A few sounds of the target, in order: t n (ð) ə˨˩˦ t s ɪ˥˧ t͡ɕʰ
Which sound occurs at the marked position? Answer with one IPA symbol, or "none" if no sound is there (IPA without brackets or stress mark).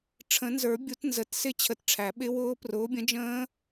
z